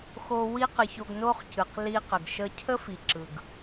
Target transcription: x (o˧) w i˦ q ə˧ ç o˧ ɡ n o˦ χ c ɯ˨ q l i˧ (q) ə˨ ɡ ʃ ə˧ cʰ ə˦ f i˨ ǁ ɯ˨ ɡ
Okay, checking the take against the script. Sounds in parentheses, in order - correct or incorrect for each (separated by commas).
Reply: correct, correct